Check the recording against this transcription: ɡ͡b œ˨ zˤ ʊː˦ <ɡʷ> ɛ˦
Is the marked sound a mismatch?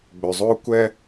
yes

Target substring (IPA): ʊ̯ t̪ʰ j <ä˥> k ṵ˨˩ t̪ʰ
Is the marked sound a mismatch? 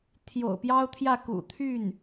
yes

